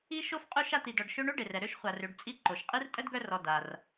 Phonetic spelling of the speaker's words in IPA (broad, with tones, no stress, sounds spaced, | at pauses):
i˥ ʃ o˥ f qʼ u˦ ʃ a˦ t̪ i˨ d ɔ˨ ɖ ʃ ø˦ ɳ o˥ ɖ e˩ r ɛ˩ ɾ ø˥ ʃ χʷ a˨ r ø˨ ɖ t͡sʼ i˦ ǃ o˩ ʃ qʼ i˥ r tʼ ə˥ d ɡ œ˦ r ɔ˨ d a˩ r